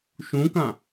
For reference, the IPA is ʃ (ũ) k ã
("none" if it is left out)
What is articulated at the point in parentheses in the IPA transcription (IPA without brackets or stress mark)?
ũ